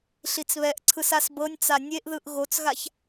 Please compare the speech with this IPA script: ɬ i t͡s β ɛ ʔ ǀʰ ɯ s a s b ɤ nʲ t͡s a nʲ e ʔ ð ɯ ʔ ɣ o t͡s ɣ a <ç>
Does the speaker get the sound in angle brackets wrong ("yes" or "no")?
no